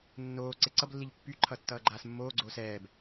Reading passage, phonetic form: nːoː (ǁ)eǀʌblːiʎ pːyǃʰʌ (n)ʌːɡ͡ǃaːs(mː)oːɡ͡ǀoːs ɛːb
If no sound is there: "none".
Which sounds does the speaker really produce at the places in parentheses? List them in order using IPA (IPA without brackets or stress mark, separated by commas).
ǀ, tː, mː